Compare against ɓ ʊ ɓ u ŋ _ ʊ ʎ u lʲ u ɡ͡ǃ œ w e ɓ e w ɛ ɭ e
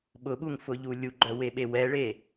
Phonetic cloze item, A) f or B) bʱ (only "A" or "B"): A